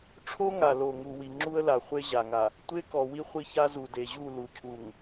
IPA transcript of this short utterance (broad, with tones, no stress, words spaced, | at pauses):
ʈ͡ʂʰo˦ŋa˨lo˨ ŋu˨wi˨ŋ͡ǁu˦ə̯la˨ χʷe˦ʑa˨ŋa˨ | tʷe˦kɔ˨wi˦ χʷi˦ça˦ zu˨de˨ʑu˦˨ lu˨cʰu˨ŋ